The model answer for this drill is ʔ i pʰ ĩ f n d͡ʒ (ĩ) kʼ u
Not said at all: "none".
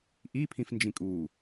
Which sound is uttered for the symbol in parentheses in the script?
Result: ĩ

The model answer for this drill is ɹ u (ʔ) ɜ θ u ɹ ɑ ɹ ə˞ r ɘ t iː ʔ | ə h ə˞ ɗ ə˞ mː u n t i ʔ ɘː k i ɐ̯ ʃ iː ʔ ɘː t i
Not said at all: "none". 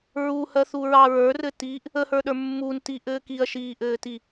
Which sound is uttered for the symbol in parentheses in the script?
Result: h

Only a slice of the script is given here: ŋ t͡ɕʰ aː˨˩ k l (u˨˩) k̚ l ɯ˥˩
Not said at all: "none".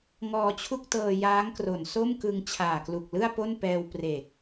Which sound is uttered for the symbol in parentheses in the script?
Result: u˨˩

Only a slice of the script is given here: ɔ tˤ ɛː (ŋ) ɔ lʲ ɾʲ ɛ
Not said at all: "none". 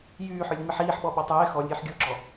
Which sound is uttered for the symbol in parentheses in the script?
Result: x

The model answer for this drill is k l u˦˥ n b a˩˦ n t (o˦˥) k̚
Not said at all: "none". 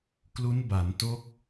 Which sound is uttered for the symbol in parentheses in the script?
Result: o˦˥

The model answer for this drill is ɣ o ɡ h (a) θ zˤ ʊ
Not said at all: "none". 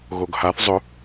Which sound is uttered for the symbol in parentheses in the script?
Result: a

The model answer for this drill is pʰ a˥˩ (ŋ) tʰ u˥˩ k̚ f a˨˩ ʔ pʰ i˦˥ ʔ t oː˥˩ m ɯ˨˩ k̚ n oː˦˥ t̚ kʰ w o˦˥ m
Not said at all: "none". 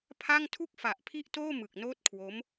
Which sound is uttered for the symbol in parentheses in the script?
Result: ŋ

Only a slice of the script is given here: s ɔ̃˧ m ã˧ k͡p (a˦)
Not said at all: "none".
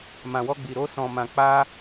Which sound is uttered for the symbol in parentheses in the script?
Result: a˦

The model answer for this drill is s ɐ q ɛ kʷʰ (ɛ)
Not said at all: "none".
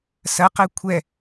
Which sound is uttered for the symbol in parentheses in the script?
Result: ɛ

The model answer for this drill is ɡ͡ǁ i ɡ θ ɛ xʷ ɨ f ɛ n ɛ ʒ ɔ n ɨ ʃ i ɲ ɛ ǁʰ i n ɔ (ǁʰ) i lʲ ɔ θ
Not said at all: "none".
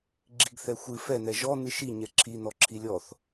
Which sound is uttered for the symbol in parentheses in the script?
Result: ǁʰ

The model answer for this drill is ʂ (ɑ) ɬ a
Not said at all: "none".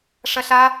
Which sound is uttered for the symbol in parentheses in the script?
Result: ɐ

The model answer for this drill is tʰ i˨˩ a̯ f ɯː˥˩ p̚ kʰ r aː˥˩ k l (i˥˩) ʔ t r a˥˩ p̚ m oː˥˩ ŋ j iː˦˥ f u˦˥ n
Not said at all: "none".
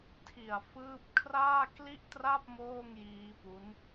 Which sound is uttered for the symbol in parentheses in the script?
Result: i˥˩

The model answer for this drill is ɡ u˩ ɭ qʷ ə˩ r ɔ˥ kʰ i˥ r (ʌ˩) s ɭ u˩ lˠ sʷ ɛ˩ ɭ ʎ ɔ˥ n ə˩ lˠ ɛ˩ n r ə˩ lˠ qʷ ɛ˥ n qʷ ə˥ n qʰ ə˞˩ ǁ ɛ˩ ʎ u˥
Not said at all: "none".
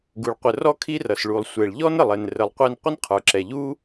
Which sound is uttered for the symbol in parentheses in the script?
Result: ʌ˩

